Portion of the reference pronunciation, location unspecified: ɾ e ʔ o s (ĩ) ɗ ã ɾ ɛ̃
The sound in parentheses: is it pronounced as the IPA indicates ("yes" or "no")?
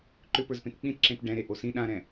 yes